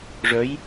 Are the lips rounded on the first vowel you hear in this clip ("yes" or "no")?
yes